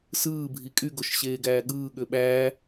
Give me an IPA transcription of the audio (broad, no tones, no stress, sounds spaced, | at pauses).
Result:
s ɯː bʱ i kʼ y ɡ o ʃ ɕ eː ɡ æː ɠ ɯː ɠ ø ɓ æː